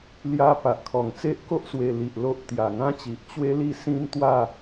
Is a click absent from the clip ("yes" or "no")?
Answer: yes